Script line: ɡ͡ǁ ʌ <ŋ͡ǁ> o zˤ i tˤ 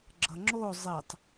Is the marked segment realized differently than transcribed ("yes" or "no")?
no